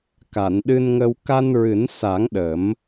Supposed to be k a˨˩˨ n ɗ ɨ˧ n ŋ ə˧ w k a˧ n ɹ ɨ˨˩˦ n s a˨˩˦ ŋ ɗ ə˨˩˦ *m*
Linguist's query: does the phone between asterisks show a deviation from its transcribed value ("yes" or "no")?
no